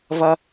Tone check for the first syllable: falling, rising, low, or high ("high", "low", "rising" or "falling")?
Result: high